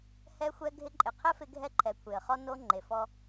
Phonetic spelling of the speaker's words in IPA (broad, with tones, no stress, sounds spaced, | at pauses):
h ɛ˦ xʷ ɛ˦ ɡʱ ɪ˦ ǃʼ ɪ˨ qʰ ɛ˦ f ɪ˦ ɡʱ ɛ˦ ǃʰ ɛ˨ kʷʰ e˨ ə̯ χ ɔ˦ n o˦ ŋ͡ǃ e˨ f ɔ˦